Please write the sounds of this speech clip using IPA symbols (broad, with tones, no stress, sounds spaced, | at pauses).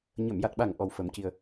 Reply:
ɲ ə˨˩˨ m j a˨˩ t̚ ɓ a˨˩ ŋ ʔ ɔ˨˩ w f ə˨˩˦ m c i˧ ə̯